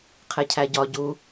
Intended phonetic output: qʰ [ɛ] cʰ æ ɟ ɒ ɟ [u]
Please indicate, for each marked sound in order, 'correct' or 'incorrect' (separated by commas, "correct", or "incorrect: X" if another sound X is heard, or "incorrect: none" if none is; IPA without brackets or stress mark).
incorrect: e, correct